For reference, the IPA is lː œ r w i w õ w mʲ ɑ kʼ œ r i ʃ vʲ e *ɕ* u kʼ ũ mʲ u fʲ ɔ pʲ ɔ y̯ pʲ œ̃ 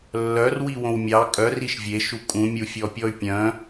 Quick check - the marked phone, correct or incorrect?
incorrect